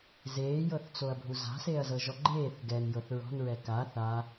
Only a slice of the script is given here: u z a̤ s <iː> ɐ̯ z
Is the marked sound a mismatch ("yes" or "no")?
yes